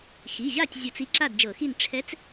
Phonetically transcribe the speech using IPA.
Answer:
xi˩˧˩ʑa˥˨tʲ zʲɤ˧˩˧t͡si˧˥ ǁa˥˨dd͡ʒɤ˧˩˧xi˥˨n ʈ͡ʂʰɛ˧˥t͡s

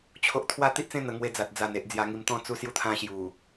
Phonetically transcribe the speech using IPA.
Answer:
t͡ɕʰo˦ʔ t̪ʰwa˦t̪i˦ʔt͡sẽ˦ n̪ə˧ ŋwe˧d͡za˨t̚ d͡za˨˩ne˨ʔ d͡zja˧ŋi˧mt̪ɔ̃˦ t͡su˧sju˧t̪ʰã˧ ɕju˨˩

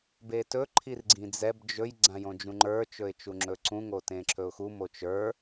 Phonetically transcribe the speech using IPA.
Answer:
betɵ ǃʰirɡ͡ǀĩd͡zɛb d͡ʒɵj ɡ͡ǀãjõd͡ʒũŋ͡ǃə˞ t͡ʃɵɪ̯t͡ʃuŋ͡ǁɵǀũ ŋotẽǁʰɵʊ̯xu mot͡ʃə˞

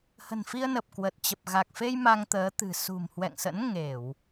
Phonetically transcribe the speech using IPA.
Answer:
hə̤˨˩nfi˧ə̯nə˨˩p̚ kwə˨˩t̚ t͡ɕə˨˩p̚ɣa˨˩k̚fe˧j ma˧ŋt̪əː˨˦ t̪ɨ̤˨˩ sṳ˨˩mhwɛ̰˧˨ŋsə̰˧˥n ŋe˧˩˨w

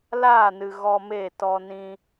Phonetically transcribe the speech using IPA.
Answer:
laː˦˨nɨ˨ ɣɔ˧me˦˨tɔ˧nĩ˧

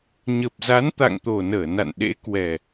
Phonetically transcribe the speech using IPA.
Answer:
ɲə˨˩p̚za˨˦nt̪a̰˧˨ŋt̪o˨˩ nəː˧˩na̰˧˨nɗḛ˧˥ kwɛ˨˩

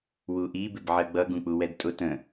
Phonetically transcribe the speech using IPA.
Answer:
wuʔi bɪbʕɜɡ͡bʌ ɡũk͡puwɛdtʼʊ tə̃

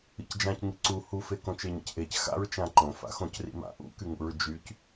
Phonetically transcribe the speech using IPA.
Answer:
ḭcd͡ʒãc ŋiǀu hufe kõt͡ʃeɲḛcʔec xa̰ɹ t͡ʃãǃõ fa̰xõcrḭma̰ ʔṵkyŋṵɹ d͡ʒyc

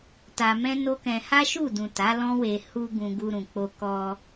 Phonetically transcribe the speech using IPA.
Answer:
ta˧mɛ̃˦no˦kɛ̃˧ ha˦ʃu˦˨dũ˨ ta˨˦lɔ̃˦we˧ hu˧ ɡũ˧ɡu˧ɾũ˨k͡po˧ kɔ˧

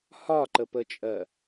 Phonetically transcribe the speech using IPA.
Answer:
hɒǃəpət͡ʃʼɜ

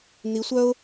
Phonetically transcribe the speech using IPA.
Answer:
n̪i˧˥sʷœ˥ʊ̯

